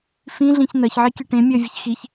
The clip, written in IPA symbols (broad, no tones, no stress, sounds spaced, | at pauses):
f ĩ ɮ ĩ ç n̪ ɜ ç ʕ i kʲ ɨ ʈ ẽ mʲ ɜ vʲ ɨ ç x i ç